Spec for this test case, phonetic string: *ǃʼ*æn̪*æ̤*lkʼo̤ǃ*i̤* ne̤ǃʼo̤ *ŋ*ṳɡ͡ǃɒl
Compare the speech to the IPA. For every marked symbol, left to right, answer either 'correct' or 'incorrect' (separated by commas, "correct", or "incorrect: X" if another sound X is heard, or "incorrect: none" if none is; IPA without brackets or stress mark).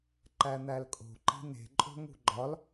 incorrect: ǃ, incorrect: æ, correct, correct